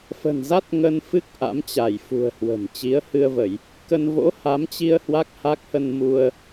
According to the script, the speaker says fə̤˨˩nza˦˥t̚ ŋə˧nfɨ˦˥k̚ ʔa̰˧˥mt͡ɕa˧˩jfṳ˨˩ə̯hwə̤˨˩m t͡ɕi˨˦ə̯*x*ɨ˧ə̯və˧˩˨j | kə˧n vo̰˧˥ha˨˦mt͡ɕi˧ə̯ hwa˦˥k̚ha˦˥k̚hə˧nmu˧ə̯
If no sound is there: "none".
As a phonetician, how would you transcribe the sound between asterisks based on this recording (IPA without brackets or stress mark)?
h